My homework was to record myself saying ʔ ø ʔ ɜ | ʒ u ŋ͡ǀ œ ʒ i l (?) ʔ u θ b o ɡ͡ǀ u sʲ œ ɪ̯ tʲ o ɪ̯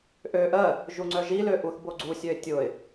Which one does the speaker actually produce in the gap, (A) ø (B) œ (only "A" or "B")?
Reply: A